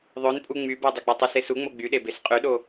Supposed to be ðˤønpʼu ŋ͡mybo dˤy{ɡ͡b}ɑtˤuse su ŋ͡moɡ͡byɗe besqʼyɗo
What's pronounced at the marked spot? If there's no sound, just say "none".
ɡ͡b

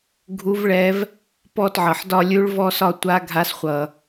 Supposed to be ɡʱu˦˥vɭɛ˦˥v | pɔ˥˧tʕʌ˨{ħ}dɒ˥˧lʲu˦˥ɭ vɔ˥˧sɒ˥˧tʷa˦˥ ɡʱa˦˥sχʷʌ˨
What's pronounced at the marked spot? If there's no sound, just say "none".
ħ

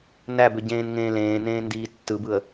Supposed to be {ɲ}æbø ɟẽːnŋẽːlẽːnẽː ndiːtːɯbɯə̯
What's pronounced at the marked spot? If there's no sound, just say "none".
n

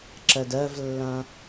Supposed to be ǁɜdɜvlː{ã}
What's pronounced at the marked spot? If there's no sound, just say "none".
ã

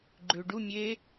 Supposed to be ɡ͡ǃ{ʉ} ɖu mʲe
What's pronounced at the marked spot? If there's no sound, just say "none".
ʉ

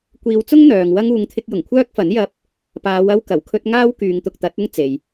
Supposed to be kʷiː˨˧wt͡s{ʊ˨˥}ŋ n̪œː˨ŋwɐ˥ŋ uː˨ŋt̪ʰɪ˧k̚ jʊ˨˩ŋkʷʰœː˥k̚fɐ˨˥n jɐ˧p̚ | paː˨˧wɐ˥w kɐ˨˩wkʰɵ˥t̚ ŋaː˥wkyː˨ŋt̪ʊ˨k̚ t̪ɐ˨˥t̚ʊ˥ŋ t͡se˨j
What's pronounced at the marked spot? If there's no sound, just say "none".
ʊ˥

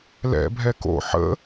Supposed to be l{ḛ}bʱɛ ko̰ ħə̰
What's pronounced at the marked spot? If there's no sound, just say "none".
ɛ̰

